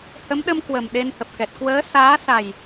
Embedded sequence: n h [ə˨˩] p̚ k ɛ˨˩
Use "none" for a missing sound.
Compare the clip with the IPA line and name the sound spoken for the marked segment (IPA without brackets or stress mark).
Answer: ə˨˩